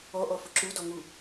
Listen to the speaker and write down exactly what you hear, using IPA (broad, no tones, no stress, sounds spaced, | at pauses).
ɔ ʔ ɔ f ʊ ǁ u d ɔ ŋ u